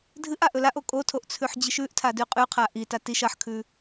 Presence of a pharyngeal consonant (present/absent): present